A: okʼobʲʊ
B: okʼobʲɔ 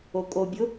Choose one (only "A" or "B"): A